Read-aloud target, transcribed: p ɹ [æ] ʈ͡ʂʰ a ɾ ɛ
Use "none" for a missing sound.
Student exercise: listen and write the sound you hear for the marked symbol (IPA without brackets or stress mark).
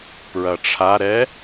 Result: ɐ